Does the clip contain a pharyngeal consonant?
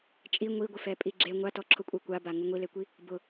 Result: no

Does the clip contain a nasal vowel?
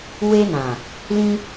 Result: yes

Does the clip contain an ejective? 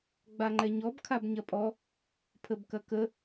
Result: yes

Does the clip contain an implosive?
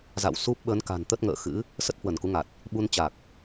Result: yes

